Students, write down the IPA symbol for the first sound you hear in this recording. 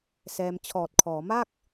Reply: s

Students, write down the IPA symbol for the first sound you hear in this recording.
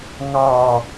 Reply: ŋ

